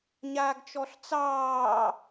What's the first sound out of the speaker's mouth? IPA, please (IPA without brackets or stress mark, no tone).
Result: ɲ